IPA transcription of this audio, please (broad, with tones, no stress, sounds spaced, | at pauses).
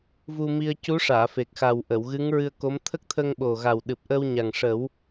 v u˧ m i˧ ə̯ c u˧˥ ʂ aː˨˩˨ f e˨˩ k̚ x a˨˩ w ʔ ə˨˩˨ w ɣ ɨ˧˥ ŋ ɹ ɨ˧ ə̯ k o˧˥ m t̪ʰ ə˦˥ k̚ t̪ʰ ə˧ ŋ ɓ o˨˩ ɣ a˨˩ w ɗ ɨ˨˩ p̚ ʔ ə˧ w ɲ a˨˩ ŋ ʂ ə˨˩˦ w